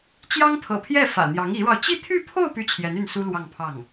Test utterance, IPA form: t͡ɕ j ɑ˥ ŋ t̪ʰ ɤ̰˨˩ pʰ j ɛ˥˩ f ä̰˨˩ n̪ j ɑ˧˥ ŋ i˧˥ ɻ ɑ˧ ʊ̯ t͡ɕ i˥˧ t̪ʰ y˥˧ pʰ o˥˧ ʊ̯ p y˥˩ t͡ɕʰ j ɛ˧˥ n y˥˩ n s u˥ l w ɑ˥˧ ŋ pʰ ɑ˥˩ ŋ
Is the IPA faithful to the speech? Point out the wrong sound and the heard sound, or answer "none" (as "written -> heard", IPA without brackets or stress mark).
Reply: none